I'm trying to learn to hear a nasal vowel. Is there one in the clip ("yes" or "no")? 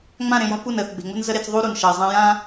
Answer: yes